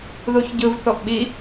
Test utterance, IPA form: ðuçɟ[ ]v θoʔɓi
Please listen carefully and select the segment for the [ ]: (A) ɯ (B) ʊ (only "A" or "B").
A